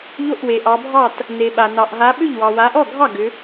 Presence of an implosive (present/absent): present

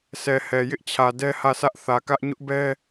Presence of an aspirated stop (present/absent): present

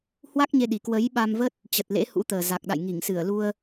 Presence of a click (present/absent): absent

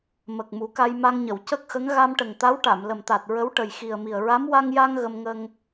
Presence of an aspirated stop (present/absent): absent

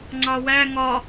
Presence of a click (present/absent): present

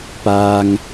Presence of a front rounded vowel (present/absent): absent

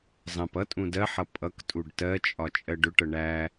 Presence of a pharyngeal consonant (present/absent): present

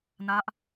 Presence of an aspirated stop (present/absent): absent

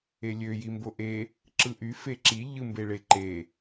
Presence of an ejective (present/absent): absent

